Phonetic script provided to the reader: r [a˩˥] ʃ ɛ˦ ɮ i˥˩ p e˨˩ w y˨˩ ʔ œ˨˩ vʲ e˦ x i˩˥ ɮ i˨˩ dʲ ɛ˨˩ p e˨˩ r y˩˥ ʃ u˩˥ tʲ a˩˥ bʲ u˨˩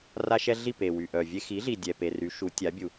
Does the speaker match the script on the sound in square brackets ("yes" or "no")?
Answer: no